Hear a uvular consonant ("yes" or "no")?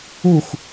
no